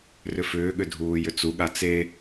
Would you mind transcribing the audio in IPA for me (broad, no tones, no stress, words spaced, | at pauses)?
rʏfʏːɠʏ dʱuːjʏt͡suɠa t͡se